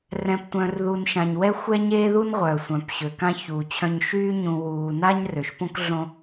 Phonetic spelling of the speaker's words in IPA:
rɛ̃˨ptʷœ̃˨rðu˨n ʃã˨ɲwɛ˥ xʷɛ˦ ɲeː˥ðu˥nʁʷœː˩ sʷœ̃˩pɕø˩kã˦ çu˩ t͡ɕʰœ̃˦ɲ ʃyː˦ɲũ˨ wuː˨na˥ɲ rø˩ʃpõ˥kɮõ˦

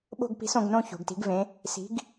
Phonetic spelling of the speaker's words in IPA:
ɓo̤˥˧ɡpi̤˨˥s õ˩˧ɡnõ˥˧ ço̤˩˧ɡti̤˨˥ɡvẽ˨˥ | si̤˨˥ɡ

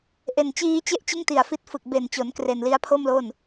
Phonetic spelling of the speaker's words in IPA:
ʔe˨˩nt͡ɕiː˦˥t͡ɕe˥˩ʔt͡ɕɯ˥˩ŋ ti˨˩a̯fi˦˥t̚fɯ˨˩k̚ be˨˩nt͡ɕo˩˦n kre˨˩nli˦˥a̯pʰo˥˩mlo˥˩n

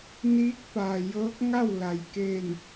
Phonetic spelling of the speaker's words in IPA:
niː˧˥k̚paː˩jɤː˧˥k̚ ŋa˥˨w la˩jke˧˩n

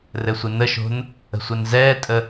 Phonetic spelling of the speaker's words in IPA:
rɘsʷɪnəʃo̤n | ə̤sʷɛnzɛːtʼə

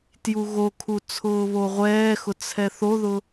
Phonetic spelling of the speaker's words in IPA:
tjuɣokʰu t͡sʰʊːβoʁʷɛːxʊ t͡sʰɛθoðʊ

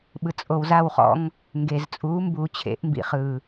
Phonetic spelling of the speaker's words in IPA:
ɓɯ˨t͡sʼo˨wza˦˨wχɔ̰˧ŋ | ŋɡe˨zt͡sʼuː˨˦ mbuː˨t͡ɕʰḛ˨˦ʔ mbḭ˨χɯ˨

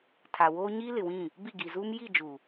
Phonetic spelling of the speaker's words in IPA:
tʰa˨woː˦ ɲiː˦lɪ˨wĩ˦˨ | bi˦˨ɡi˨zuː˦m ji˦˨d͡ʒu˨

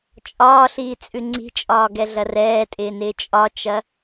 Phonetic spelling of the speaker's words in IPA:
t͡ʃʼɒːɬiː t͡sʼʉŋ͡ǀi̤t͡ʃʼɒː ɡɛɮɐrɛːtʼɪː nɪːt͡ʃʼɒt͡ʃɐ

